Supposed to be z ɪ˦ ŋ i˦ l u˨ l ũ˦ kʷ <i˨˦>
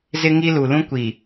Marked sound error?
yes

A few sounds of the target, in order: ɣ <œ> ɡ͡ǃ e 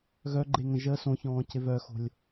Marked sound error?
no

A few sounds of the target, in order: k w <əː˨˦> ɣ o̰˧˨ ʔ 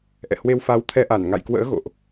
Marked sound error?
yes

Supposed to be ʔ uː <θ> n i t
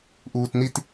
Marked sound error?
yes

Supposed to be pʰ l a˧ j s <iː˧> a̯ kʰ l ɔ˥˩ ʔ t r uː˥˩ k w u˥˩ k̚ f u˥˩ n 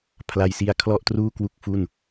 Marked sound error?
yes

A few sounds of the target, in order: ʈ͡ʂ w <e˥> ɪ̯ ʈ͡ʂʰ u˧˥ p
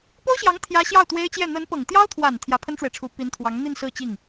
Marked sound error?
yes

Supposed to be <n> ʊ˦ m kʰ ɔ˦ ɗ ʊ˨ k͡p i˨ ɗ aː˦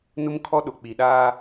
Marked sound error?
no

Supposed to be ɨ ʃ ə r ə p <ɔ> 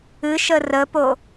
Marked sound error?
yes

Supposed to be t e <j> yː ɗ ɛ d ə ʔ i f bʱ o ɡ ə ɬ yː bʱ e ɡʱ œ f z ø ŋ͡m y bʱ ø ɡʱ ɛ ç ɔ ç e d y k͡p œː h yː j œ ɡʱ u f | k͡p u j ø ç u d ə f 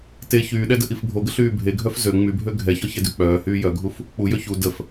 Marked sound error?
yes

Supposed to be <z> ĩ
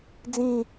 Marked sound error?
yes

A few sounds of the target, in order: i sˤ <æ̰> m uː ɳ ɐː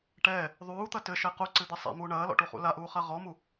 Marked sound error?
yes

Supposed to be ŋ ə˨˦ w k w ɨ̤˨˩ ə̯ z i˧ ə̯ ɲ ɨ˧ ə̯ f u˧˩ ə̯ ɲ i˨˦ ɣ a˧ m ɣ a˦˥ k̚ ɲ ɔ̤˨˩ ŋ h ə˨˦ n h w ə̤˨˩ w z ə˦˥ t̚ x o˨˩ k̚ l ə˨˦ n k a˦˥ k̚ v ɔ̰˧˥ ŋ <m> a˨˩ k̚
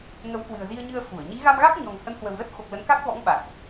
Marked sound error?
yes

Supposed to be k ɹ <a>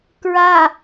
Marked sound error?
no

